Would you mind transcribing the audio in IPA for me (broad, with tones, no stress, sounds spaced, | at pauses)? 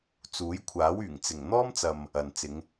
t͡s uː˨˥ j kʷʰ aː˨˥ w yː˨˩ ŋ t͡s ɪ˨˩ ŋ n̪ ɔː˥ m t͡s ɐ˨ m | ɐ˨ n t͡s ɪ˨˧ ŋ